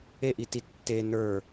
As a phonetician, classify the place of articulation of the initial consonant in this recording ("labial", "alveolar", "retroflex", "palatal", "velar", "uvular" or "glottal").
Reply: glottal